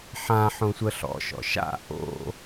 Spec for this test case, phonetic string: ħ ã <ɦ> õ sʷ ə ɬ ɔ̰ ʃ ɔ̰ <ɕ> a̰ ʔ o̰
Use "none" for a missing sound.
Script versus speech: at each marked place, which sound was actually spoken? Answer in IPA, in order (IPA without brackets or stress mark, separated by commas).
ħ, ʃ